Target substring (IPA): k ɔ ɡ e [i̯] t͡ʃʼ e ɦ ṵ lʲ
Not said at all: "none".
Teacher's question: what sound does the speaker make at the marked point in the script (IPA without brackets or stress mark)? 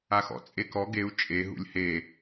u̯